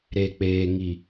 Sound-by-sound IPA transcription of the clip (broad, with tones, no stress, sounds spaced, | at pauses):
ɾ e˨ k͡p eː˨ ŋ i˨